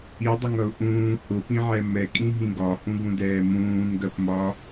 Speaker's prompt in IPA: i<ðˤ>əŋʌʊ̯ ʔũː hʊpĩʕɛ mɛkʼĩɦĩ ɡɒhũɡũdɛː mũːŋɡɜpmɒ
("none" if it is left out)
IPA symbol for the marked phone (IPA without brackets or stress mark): dˤ